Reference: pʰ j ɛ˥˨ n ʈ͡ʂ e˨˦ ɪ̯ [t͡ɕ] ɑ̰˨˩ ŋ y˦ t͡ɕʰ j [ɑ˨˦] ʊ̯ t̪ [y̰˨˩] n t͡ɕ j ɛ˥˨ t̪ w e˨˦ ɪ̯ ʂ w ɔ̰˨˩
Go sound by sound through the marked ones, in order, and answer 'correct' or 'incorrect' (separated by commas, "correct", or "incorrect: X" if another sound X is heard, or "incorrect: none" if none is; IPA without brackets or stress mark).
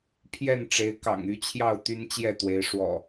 incorrect: k, incorrect: ɑ˥˨, incorrect: y˦